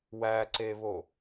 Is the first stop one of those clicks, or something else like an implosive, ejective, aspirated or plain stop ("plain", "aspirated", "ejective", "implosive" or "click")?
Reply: click